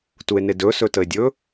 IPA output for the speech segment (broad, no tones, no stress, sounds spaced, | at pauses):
t u e̯ n e d ɵ s ɵ t ə e̯ dʲ ɵ